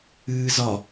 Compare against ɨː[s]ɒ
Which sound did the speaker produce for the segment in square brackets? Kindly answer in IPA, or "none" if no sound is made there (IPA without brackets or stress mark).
z